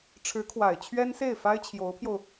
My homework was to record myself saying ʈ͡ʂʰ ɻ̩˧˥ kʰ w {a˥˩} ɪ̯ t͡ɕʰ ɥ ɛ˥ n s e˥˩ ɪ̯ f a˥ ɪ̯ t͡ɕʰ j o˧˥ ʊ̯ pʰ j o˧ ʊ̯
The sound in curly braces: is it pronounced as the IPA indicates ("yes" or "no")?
no